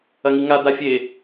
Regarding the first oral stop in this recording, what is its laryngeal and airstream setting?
plain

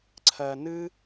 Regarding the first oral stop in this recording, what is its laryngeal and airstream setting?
click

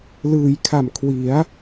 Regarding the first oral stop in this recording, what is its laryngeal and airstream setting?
aspirated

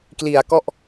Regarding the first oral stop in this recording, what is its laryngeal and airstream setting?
plain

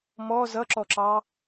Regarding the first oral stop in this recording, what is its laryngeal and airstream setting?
click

